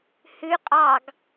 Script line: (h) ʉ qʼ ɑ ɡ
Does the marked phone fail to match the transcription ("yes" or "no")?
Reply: no